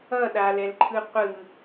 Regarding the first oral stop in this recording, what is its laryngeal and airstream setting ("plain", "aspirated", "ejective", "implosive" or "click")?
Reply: implosive